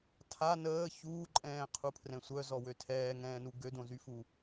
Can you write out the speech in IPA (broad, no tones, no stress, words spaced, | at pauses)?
tʰa nəː çuːǃʼɛ̃ːqʰupʰrɛ̃ sʷœzɔwø tʰɛːŋɛ̃ːnu ɡødõzyfu